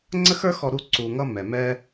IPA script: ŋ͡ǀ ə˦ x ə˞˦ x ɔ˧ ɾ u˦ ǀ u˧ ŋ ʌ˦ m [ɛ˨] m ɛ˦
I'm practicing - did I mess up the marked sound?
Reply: no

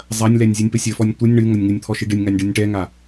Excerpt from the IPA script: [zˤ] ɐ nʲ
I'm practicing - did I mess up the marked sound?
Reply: no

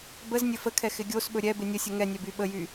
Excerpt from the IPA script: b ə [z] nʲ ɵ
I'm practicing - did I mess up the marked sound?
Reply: no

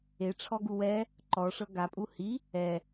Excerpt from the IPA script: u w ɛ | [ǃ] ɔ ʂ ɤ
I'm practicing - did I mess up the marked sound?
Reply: no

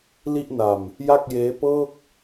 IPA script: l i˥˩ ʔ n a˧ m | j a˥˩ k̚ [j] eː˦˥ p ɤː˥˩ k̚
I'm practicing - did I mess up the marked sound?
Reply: no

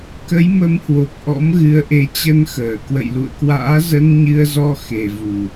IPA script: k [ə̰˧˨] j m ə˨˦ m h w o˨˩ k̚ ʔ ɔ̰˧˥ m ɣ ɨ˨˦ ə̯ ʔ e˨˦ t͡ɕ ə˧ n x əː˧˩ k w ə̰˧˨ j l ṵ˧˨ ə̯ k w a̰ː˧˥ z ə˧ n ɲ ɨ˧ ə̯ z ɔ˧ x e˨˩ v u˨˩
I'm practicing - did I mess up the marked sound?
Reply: yes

